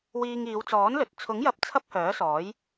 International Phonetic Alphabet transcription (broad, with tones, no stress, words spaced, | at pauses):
wiː˧ŋiː˨˧wt͡sɔː˨˥nlɵ˨t̚ t͡sʰʊ˨˥ŋjɐ˧p̚ t͡sʰɐ˥p̚hœː˨˥sɔː˨˥j